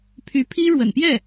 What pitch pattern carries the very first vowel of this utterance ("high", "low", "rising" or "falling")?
rising